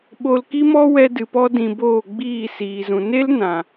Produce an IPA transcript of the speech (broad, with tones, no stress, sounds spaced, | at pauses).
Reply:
ɓ o˧ l k i˦ m ɔ˦ w ɛ˧ d ɨ˧ p ɔ˦ d ĩ˧ b oː˦˨ ɡ͡b iː˦˨ s iː˨ z ũ˨ n e˦ l n ã˨